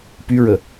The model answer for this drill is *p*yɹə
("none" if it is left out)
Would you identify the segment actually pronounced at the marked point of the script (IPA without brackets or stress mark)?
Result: p